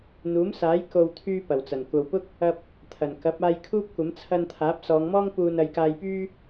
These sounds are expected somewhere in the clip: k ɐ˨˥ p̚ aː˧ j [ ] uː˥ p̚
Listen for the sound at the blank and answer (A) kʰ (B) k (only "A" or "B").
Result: A